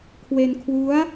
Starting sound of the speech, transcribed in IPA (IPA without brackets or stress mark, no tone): kʰ